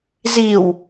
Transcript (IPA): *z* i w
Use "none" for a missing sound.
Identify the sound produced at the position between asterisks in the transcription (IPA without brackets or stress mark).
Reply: z